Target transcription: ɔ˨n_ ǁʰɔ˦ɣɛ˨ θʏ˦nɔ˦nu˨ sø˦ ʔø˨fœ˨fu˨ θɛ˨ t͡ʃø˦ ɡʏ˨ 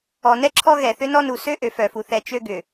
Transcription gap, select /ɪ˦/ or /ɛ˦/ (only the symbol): ɛ˦